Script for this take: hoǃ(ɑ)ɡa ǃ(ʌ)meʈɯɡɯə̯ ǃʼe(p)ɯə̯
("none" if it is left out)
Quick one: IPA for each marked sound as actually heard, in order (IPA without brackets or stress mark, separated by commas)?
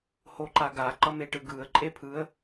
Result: a, ʌ, pʰ